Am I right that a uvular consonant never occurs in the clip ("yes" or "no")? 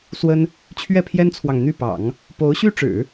yes